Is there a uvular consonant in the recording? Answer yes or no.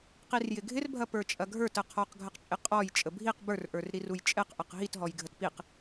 yes